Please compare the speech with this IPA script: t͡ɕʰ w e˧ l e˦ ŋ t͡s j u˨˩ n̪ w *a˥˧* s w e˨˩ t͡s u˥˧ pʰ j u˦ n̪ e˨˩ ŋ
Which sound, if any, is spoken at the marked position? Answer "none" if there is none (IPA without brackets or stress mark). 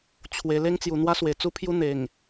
a˦